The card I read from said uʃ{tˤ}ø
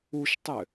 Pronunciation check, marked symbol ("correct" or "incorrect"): correct